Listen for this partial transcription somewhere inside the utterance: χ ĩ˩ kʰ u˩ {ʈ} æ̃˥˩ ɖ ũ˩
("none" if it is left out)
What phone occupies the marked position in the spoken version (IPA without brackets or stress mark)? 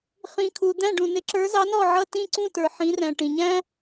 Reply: d̪